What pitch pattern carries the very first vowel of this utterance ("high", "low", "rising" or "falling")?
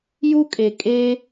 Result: high